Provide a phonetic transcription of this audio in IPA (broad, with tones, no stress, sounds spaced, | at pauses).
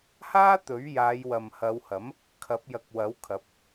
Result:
h aː˥ t̪ ɵ˨˥ ɥ j aː˨˧ j w ɐ˨ m h ɐ˨˧ w h ɐ˨˥ m | kʰ ɐ˨˥ p̚ j ɐ˨˥ k̚ w ɐ˨˥ w kʰ ɐ˨˥ p̚